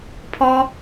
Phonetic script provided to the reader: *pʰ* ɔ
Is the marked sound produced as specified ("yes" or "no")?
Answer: yes